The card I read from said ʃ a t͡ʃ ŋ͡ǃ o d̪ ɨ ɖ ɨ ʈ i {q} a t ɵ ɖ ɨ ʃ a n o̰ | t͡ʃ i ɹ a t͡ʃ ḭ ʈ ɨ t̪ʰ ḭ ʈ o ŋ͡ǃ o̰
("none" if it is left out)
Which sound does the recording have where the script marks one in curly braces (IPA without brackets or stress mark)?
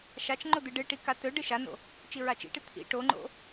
k